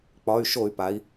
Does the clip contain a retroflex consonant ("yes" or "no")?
no